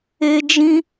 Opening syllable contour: high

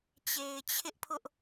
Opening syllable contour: low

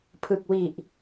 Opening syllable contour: low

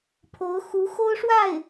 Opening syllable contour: rising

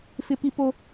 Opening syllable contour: high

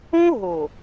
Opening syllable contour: high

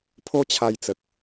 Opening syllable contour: high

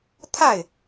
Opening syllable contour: falling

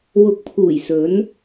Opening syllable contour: rising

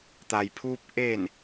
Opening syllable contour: low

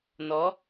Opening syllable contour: rising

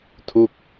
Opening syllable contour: falling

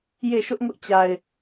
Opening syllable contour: falling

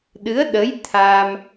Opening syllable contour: rising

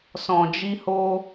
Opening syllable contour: low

